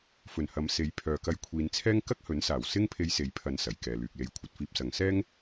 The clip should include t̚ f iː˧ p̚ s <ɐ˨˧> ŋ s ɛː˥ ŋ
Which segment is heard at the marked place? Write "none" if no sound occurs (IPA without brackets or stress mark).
ɐ˨˧